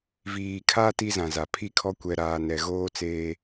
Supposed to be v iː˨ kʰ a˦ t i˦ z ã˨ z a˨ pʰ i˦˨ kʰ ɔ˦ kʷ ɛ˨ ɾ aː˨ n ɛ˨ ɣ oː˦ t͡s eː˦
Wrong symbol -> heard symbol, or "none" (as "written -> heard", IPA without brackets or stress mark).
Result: none